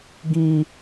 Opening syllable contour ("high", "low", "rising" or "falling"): high